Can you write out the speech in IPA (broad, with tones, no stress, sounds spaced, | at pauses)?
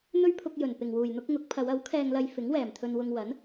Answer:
n̪ ɵ˥ ɥ pʰ ʊ˧ k̚ j ɵ˨˩ n p ɪ˨˩ ŋ w uː˨˩ j n̪ ʊ˥ k̚ ŋ ʊ˨˥ k̚ pʰ ɐ˨˧ w ɐ˨˥ w kʰ ɛː˧ ŋ l ɐ˧ j f ɪ˨˥ ŋ w ɛː˨˩ m t̪ʰ ɵ˧ n w ʊ˧ ŋ w ɐ˨˥ n